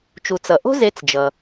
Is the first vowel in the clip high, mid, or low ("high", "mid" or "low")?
high